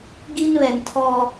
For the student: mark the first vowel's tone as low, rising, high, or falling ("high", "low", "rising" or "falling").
high